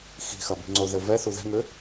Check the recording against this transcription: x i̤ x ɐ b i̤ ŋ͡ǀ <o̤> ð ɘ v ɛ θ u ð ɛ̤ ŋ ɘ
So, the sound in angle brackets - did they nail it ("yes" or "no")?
no